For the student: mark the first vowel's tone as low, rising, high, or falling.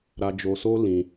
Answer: high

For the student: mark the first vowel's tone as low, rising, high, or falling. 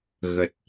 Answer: low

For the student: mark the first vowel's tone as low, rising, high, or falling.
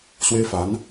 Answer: high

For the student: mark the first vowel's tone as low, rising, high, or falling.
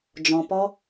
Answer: low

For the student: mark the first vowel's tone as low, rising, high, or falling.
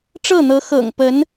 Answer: falling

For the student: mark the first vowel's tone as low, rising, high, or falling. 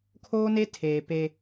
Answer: high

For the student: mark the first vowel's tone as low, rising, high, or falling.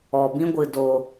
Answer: low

